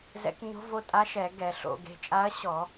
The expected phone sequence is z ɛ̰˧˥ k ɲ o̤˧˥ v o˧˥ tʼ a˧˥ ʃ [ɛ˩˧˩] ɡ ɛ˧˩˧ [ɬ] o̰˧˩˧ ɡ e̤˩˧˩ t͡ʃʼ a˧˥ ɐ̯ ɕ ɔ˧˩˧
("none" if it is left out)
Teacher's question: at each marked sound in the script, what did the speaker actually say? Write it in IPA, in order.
ɛ˧˩˧, ɬ

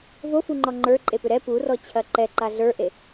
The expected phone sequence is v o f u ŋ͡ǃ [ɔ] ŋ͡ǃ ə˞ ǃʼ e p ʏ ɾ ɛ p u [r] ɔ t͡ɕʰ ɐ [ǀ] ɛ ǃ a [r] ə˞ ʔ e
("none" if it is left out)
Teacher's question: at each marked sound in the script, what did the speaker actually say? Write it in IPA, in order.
ɔ, r, ǃ, ɮ

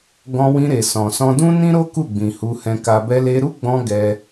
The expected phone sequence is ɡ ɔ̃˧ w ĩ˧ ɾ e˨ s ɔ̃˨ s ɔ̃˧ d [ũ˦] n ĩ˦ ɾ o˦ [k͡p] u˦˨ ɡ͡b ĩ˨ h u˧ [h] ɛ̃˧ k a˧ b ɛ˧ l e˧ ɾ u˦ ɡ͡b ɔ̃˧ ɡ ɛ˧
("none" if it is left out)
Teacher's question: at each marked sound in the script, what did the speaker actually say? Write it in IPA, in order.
ũ˦, k, h

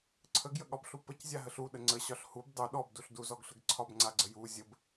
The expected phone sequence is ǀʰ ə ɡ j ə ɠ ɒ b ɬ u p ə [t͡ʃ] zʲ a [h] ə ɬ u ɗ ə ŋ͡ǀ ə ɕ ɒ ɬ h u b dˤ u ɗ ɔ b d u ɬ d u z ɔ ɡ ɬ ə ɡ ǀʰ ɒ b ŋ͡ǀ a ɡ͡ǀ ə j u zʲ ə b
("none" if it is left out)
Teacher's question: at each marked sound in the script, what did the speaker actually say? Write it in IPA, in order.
c, ɦ

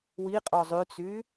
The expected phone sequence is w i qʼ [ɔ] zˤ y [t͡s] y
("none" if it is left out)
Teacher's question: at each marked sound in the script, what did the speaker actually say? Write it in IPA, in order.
ɔ, t͡s

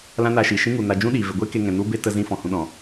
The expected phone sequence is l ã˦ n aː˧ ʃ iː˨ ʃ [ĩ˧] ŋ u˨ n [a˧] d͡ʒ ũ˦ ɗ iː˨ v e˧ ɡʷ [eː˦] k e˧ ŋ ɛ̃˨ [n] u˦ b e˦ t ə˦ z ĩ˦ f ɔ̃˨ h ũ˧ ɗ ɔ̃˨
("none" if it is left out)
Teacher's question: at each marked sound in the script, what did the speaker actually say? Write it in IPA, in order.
ĩ˦, a˧, eː˦, n

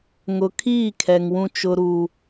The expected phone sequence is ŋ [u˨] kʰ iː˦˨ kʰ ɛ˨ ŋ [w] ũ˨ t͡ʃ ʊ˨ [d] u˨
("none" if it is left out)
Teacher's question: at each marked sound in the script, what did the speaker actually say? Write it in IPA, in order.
ʊ˨, w, ɾ

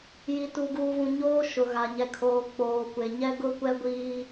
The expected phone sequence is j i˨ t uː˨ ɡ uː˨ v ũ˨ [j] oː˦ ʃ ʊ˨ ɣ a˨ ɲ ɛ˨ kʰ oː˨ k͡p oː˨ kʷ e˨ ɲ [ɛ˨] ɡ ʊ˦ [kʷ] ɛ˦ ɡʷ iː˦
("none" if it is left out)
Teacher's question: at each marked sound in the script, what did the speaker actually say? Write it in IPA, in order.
ɲ, ɛ˦, kʷ

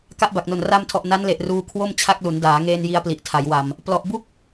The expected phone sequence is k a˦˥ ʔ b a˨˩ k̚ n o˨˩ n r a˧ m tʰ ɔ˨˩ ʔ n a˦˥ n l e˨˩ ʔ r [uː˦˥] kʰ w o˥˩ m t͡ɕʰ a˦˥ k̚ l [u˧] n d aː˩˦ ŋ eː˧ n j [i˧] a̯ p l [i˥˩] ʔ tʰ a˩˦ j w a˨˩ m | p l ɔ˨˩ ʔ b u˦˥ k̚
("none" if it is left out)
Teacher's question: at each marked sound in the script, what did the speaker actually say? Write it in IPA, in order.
uː˧, u˩˦, i˧, i˨˩

